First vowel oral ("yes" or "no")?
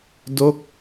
yes